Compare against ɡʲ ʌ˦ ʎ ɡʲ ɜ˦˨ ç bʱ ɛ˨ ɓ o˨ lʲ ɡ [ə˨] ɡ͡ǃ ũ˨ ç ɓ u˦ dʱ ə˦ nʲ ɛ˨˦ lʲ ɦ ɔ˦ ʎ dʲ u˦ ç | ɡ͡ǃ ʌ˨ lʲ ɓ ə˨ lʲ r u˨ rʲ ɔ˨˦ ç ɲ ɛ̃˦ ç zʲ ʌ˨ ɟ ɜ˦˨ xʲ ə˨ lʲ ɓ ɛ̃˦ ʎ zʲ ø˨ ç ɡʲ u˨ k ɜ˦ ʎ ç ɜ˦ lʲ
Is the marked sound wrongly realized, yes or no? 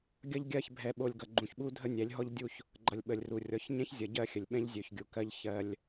yes